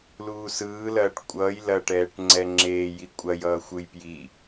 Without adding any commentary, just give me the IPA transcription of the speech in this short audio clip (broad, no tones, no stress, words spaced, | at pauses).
luːsɯː lɐːʈkʷʼʌːj lɐʈɛːʈŋ͡ǀɛ ŋ͡ǁeːji kʷʼɐjʌːxʷɯj pji